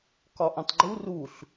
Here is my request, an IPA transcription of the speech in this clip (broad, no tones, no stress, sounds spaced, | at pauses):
k ɒ ʔ õ tˤ ɡ͡ǃ u r u ɬ